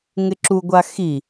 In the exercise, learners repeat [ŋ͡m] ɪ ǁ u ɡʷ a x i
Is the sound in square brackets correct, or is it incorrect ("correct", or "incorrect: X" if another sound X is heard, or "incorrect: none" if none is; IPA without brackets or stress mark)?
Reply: incorrect: ŋ